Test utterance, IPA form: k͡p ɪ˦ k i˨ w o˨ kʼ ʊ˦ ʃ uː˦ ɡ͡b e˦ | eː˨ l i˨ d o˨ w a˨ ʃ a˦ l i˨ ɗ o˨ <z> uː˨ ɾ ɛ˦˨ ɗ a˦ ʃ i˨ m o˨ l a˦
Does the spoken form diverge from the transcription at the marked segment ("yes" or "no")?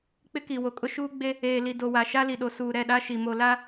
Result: yes